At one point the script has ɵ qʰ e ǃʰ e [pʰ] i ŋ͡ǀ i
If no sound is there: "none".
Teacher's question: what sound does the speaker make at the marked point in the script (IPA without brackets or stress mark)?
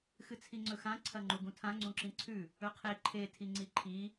tʰ